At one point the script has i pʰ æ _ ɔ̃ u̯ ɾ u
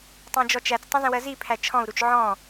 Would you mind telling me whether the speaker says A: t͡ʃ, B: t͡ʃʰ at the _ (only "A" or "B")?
B